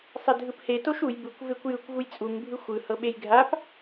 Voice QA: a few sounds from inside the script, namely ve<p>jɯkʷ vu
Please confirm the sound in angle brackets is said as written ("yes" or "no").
no